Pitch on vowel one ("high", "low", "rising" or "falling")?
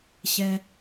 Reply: low